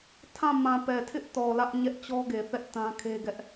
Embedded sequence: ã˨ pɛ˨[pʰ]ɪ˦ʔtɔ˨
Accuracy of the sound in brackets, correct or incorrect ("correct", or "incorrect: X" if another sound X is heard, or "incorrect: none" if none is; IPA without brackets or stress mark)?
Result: incorrect: tʰ